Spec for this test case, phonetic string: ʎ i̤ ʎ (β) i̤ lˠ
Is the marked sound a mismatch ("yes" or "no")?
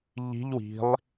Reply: yes